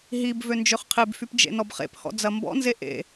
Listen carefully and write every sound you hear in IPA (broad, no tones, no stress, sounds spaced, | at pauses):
ɦ i b v ø n d͡ʒ ø χ qʰ e b f y p d͡ʒ ḛ n ɔ b χ ḛ p h ɔ̰ d͡z ɐ m b ɔ̰ n z e ʔ ḛ